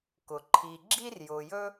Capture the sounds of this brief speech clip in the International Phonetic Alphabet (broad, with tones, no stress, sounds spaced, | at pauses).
k ʊ˩ ǃʰ i˨ ɡ͡ǁ i˥ r j ʊ˨ j ɵ˥